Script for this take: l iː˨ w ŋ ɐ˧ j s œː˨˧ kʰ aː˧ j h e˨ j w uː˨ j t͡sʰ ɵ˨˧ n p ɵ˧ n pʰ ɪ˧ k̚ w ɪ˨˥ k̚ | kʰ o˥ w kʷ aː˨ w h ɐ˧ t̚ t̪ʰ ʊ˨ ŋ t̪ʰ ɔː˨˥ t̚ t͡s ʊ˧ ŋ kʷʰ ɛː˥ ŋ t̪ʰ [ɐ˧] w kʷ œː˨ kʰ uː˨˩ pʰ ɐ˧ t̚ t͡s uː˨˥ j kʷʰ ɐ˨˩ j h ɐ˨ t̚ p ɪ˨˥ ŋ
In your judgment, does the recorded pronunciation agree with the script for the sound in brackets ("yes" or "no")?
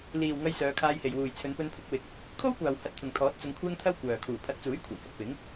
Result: no